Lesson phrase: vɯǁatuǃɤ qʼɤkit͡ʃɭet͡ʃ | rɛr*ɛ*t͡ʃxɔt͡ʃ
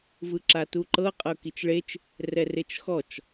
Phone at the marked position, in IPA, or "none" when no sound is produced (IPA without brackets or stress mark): e